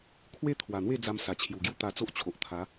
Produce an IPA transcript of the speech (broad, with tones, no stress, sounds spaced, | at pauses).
kʰ w e˦ t̪ʰ w a˨˩ n̪ w e˥˧ d͡z a˧ m s a˨˩ t͡ɕʰ j u˨˩ ɡ j u˦ t̪ a˧ t͡s o˦ ʔ t͡ɕʰ o˨ ʔ t̪ʰ a˨˦